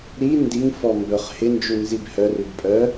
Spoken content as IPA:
ɾ i n d i ŋ f ɔ m b œ χ h ɪ n d͡ʒ u n z i b h œ r ʉ b pʼ œ

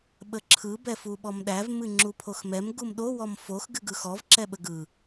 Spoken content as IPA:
ɓ ə ǁʰ ɯ b ɛ f u ɓ ɔ m ɗ æ v m ɨ ŋ͡ǁ u pʰ o x m ɛ m ɡ u m ɗ o w ɔ m f o x ɡ ɨ ɡ ɯ x ɔ v ǁ ɛ ɓ ə ɡ ɯ

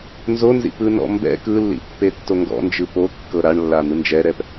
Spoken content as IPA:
n z o n z ḭ p ɯ n ɔ̰ m b ɛ̰ k ɯ lː ḭ pː e tː o ŋ ɡ ɔ̰ n d͡ʒ ɯ p o kː ɤ ɾ a ɳ lː a n̪ ɯ n d͡ʒ ɛ ɾ ɛ p

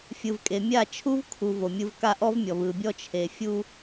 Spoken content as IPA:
fʲ ɯ˨ v kʼ e˨ mʲ a˦˨ t͡ʃʰ u˦ v kʰ u˨ v o˨ mʲ ɯ˦ v k a˦˨ ʔ ɔ˦ v mʲ ɔ˨ v ɯ˨ bʲ ɔ˦ t͡ʃʰ e˨ fʲ u˦

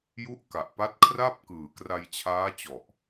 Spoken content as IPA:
j u˦˥ ʔ k a˨˩ ʔ p a˦˥ t̚ kʰ r a˥˩ p̚ k ɯː˨˩ k r a˧ j t͡ɕʰ aː˦˥ t͡ɕ ɔ˨˩ ʔ

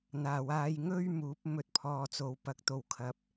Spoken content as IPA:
n̪ aː˨˩ w aː˧ j ŋ ɵ˥ ɥ m uː˨˥ p̚ m ɵ˨ t̚ pʰ ɔː˨ t͡s o˨ w p ɐ˨˥ k̚ t̪ o˨ w kʰ ɐ˨ p̚

